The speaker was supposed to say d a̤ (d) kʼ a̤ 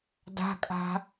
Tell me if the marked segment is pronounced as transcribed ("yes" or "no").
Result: no